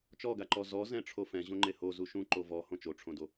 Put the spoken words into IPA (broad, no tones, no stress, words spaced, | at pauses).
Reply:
t͡ʃɔɡaǃɔ zɔ zɛ̃ʈ͡ʂʰofɛ̃ ʑõŋ͡ǃeho zuʃũ ǃovɔ hõt͡ʃoʈ͡ʂʰõdo